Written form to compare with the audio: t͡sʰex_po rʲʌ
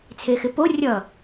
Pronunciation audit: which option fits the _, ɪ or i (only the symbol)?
ɪ